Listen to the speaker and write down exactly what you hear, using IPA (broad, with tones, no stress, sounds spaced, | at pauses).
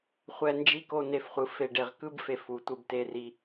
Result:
χʷ ɛ˧ n d͡ʒ i˦ k o˧ n e˧ f χʷ ɯ˨ f e˨ ɖ e˨ ʁ k ɯ˦ b f e˧ f u˨ tʷ ɯ˧ b t e˧ r i˧